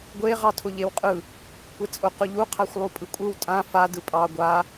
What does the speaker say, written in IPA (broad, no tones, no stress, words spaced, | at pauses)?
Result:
ɡʷe ʁɑtʰʊʎewqʼɯ | kʷet͡sʼʊ qʊʎu qʰaxʷlˠupʼɯkʷʼɯw tʼã fa dɯpʼɑ ɡʷa